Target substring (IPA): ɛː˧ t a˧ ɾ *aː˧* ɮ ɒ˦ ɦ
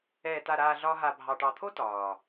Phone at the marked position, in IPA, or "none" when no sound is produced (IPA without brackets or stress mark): aː˧